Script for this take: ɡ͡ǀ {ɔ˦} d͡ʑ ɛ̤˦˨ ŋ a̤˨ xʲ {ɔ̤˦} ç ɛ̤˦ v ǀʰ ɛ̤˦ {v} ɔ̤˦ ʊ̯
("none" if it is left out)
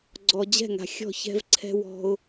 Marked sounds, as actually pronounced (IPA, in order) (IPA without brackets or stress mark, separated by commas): ɔ˨, ɔ̤˦˨, w